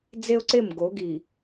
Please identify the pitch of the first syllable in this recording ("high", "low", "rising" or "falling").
high